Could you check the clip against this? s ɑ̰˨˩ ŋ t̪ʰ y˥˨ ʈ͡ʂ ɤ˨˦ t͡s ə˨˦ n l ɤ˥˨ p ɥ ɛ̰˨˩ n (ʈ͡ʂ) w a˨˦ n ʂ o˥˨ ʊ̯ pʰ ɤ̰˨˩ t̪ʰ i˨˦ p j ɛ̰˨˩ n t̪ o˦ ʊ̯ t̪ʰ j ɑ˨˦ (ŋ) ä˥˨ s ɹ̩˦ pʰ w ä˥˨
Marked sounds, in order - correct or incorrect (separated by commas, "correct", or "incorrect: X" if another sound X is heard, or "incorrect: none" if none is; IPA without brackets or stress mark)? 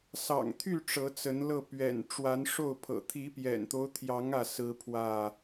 correct, correct